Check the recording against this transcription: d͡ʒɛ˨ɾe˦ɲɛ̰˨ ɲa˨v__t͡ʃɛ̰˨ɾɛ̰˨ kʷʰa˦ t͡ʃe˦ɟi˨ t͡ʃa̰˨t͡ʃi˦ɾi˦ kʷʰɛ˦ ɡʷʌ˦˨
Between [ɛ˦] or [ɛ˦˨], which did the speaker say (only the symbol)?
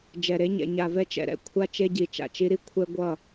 ɛ˦